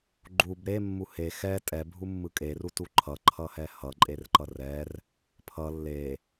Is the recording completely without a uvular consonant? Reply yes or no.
yes